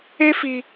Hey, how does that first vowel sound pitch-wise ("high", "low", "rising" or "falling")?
high